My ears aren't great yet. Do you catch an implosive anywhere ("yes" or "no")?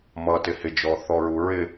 no